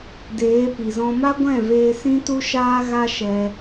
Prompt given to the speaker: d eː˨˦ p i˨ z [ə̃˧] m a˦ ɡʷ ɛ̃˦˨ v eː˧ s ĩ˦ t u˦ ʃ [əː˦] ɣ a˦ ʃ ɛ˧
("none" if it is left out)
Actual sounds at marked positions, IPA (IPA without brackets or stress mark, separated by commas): ɔ̃˧, aː˦